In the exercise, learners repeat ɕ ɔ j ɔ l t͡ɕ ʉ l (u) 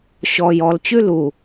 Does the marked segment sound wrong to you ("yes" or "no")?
no